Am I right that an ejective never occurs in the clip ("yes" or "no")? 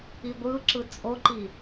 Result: no